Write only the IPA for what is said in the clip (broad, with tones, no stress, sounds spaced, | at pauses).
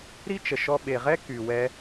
ɾ i˦ t͡ʃ ə˨ ʃ ɔ˧ ɓ e˨ ʁ ɛ˦ k y˨ w ɛ˧